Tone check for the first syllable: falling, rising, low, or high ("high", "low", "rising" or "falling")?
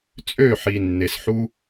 falling